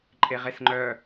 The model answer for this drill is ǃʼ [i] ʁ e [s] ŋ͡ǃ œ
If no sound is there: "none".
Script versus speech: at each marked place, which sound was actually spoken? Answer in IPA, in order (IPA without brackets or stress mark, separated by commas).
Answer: e, s